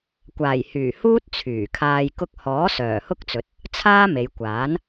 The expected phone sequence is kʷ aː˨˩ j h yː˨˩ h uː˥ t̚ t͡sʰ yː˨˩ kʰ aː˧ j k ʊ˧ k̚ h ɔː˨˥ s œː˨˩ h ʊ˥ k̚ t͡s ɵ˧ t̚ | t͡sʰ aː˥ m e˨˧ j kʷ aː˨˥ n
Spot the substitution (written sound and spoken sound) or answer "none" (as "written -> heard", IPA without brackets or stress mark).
ɵ˧ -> ɵ˨˥